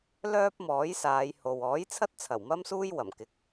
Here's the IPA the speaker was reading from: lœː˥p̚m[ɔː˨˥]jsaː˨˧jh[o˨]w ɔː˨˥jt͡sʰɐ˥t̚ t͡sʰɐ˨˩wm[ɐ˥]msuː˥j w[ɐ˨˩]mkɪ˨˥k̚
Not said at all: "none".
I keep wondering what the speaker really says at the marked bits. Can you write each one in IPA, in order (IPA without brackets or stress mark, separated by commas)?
ɔː˨˥, o˨, ɐ˥, ɐ˨˩